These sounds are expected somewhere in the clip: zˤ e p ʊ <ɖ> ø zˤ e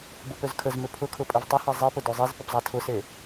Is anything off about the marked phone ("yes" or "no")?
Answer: yes